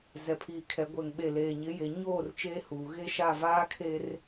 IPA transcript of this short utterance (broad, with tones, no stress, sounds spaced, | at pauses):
z ɛ˨ pʰ iː˨ kʰ ɛ˨˦ ɡʷ ɛ˨ ŋ ɓ e˨ l eː˨ ɲ ɪ˨˦ j e˨ ɲ oː˦˨ r t͡ʃ eː˦ h uː˨ ɣ e˦ ʃ a˦˨ v aː˦ kʰ e˦ r